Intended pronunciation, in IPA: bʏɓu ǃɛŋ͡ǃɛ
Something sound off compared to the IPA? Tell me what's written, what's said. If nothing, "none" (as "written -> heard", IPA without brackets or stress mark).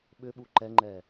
b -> ɓ